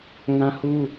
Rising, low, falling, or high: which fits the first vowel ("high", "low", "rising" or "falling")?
high